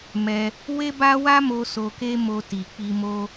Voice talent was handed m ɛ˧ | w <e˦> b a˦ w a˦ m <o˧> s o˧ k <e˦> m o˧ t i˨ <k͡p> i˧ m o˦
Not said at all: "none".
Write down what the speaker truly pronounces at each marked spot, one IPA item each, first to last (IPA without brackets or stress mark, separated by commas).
e˦, o˧, e˦, k͡p